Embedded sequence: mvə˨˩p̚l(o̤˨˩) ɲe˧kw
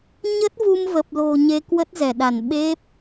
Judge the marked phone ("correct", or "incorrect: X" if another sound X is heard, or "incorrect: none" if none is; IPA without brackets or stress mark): correct